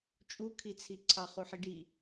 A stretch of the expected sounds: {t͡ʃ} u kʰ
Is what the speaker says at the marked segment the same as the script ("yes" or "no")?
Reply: no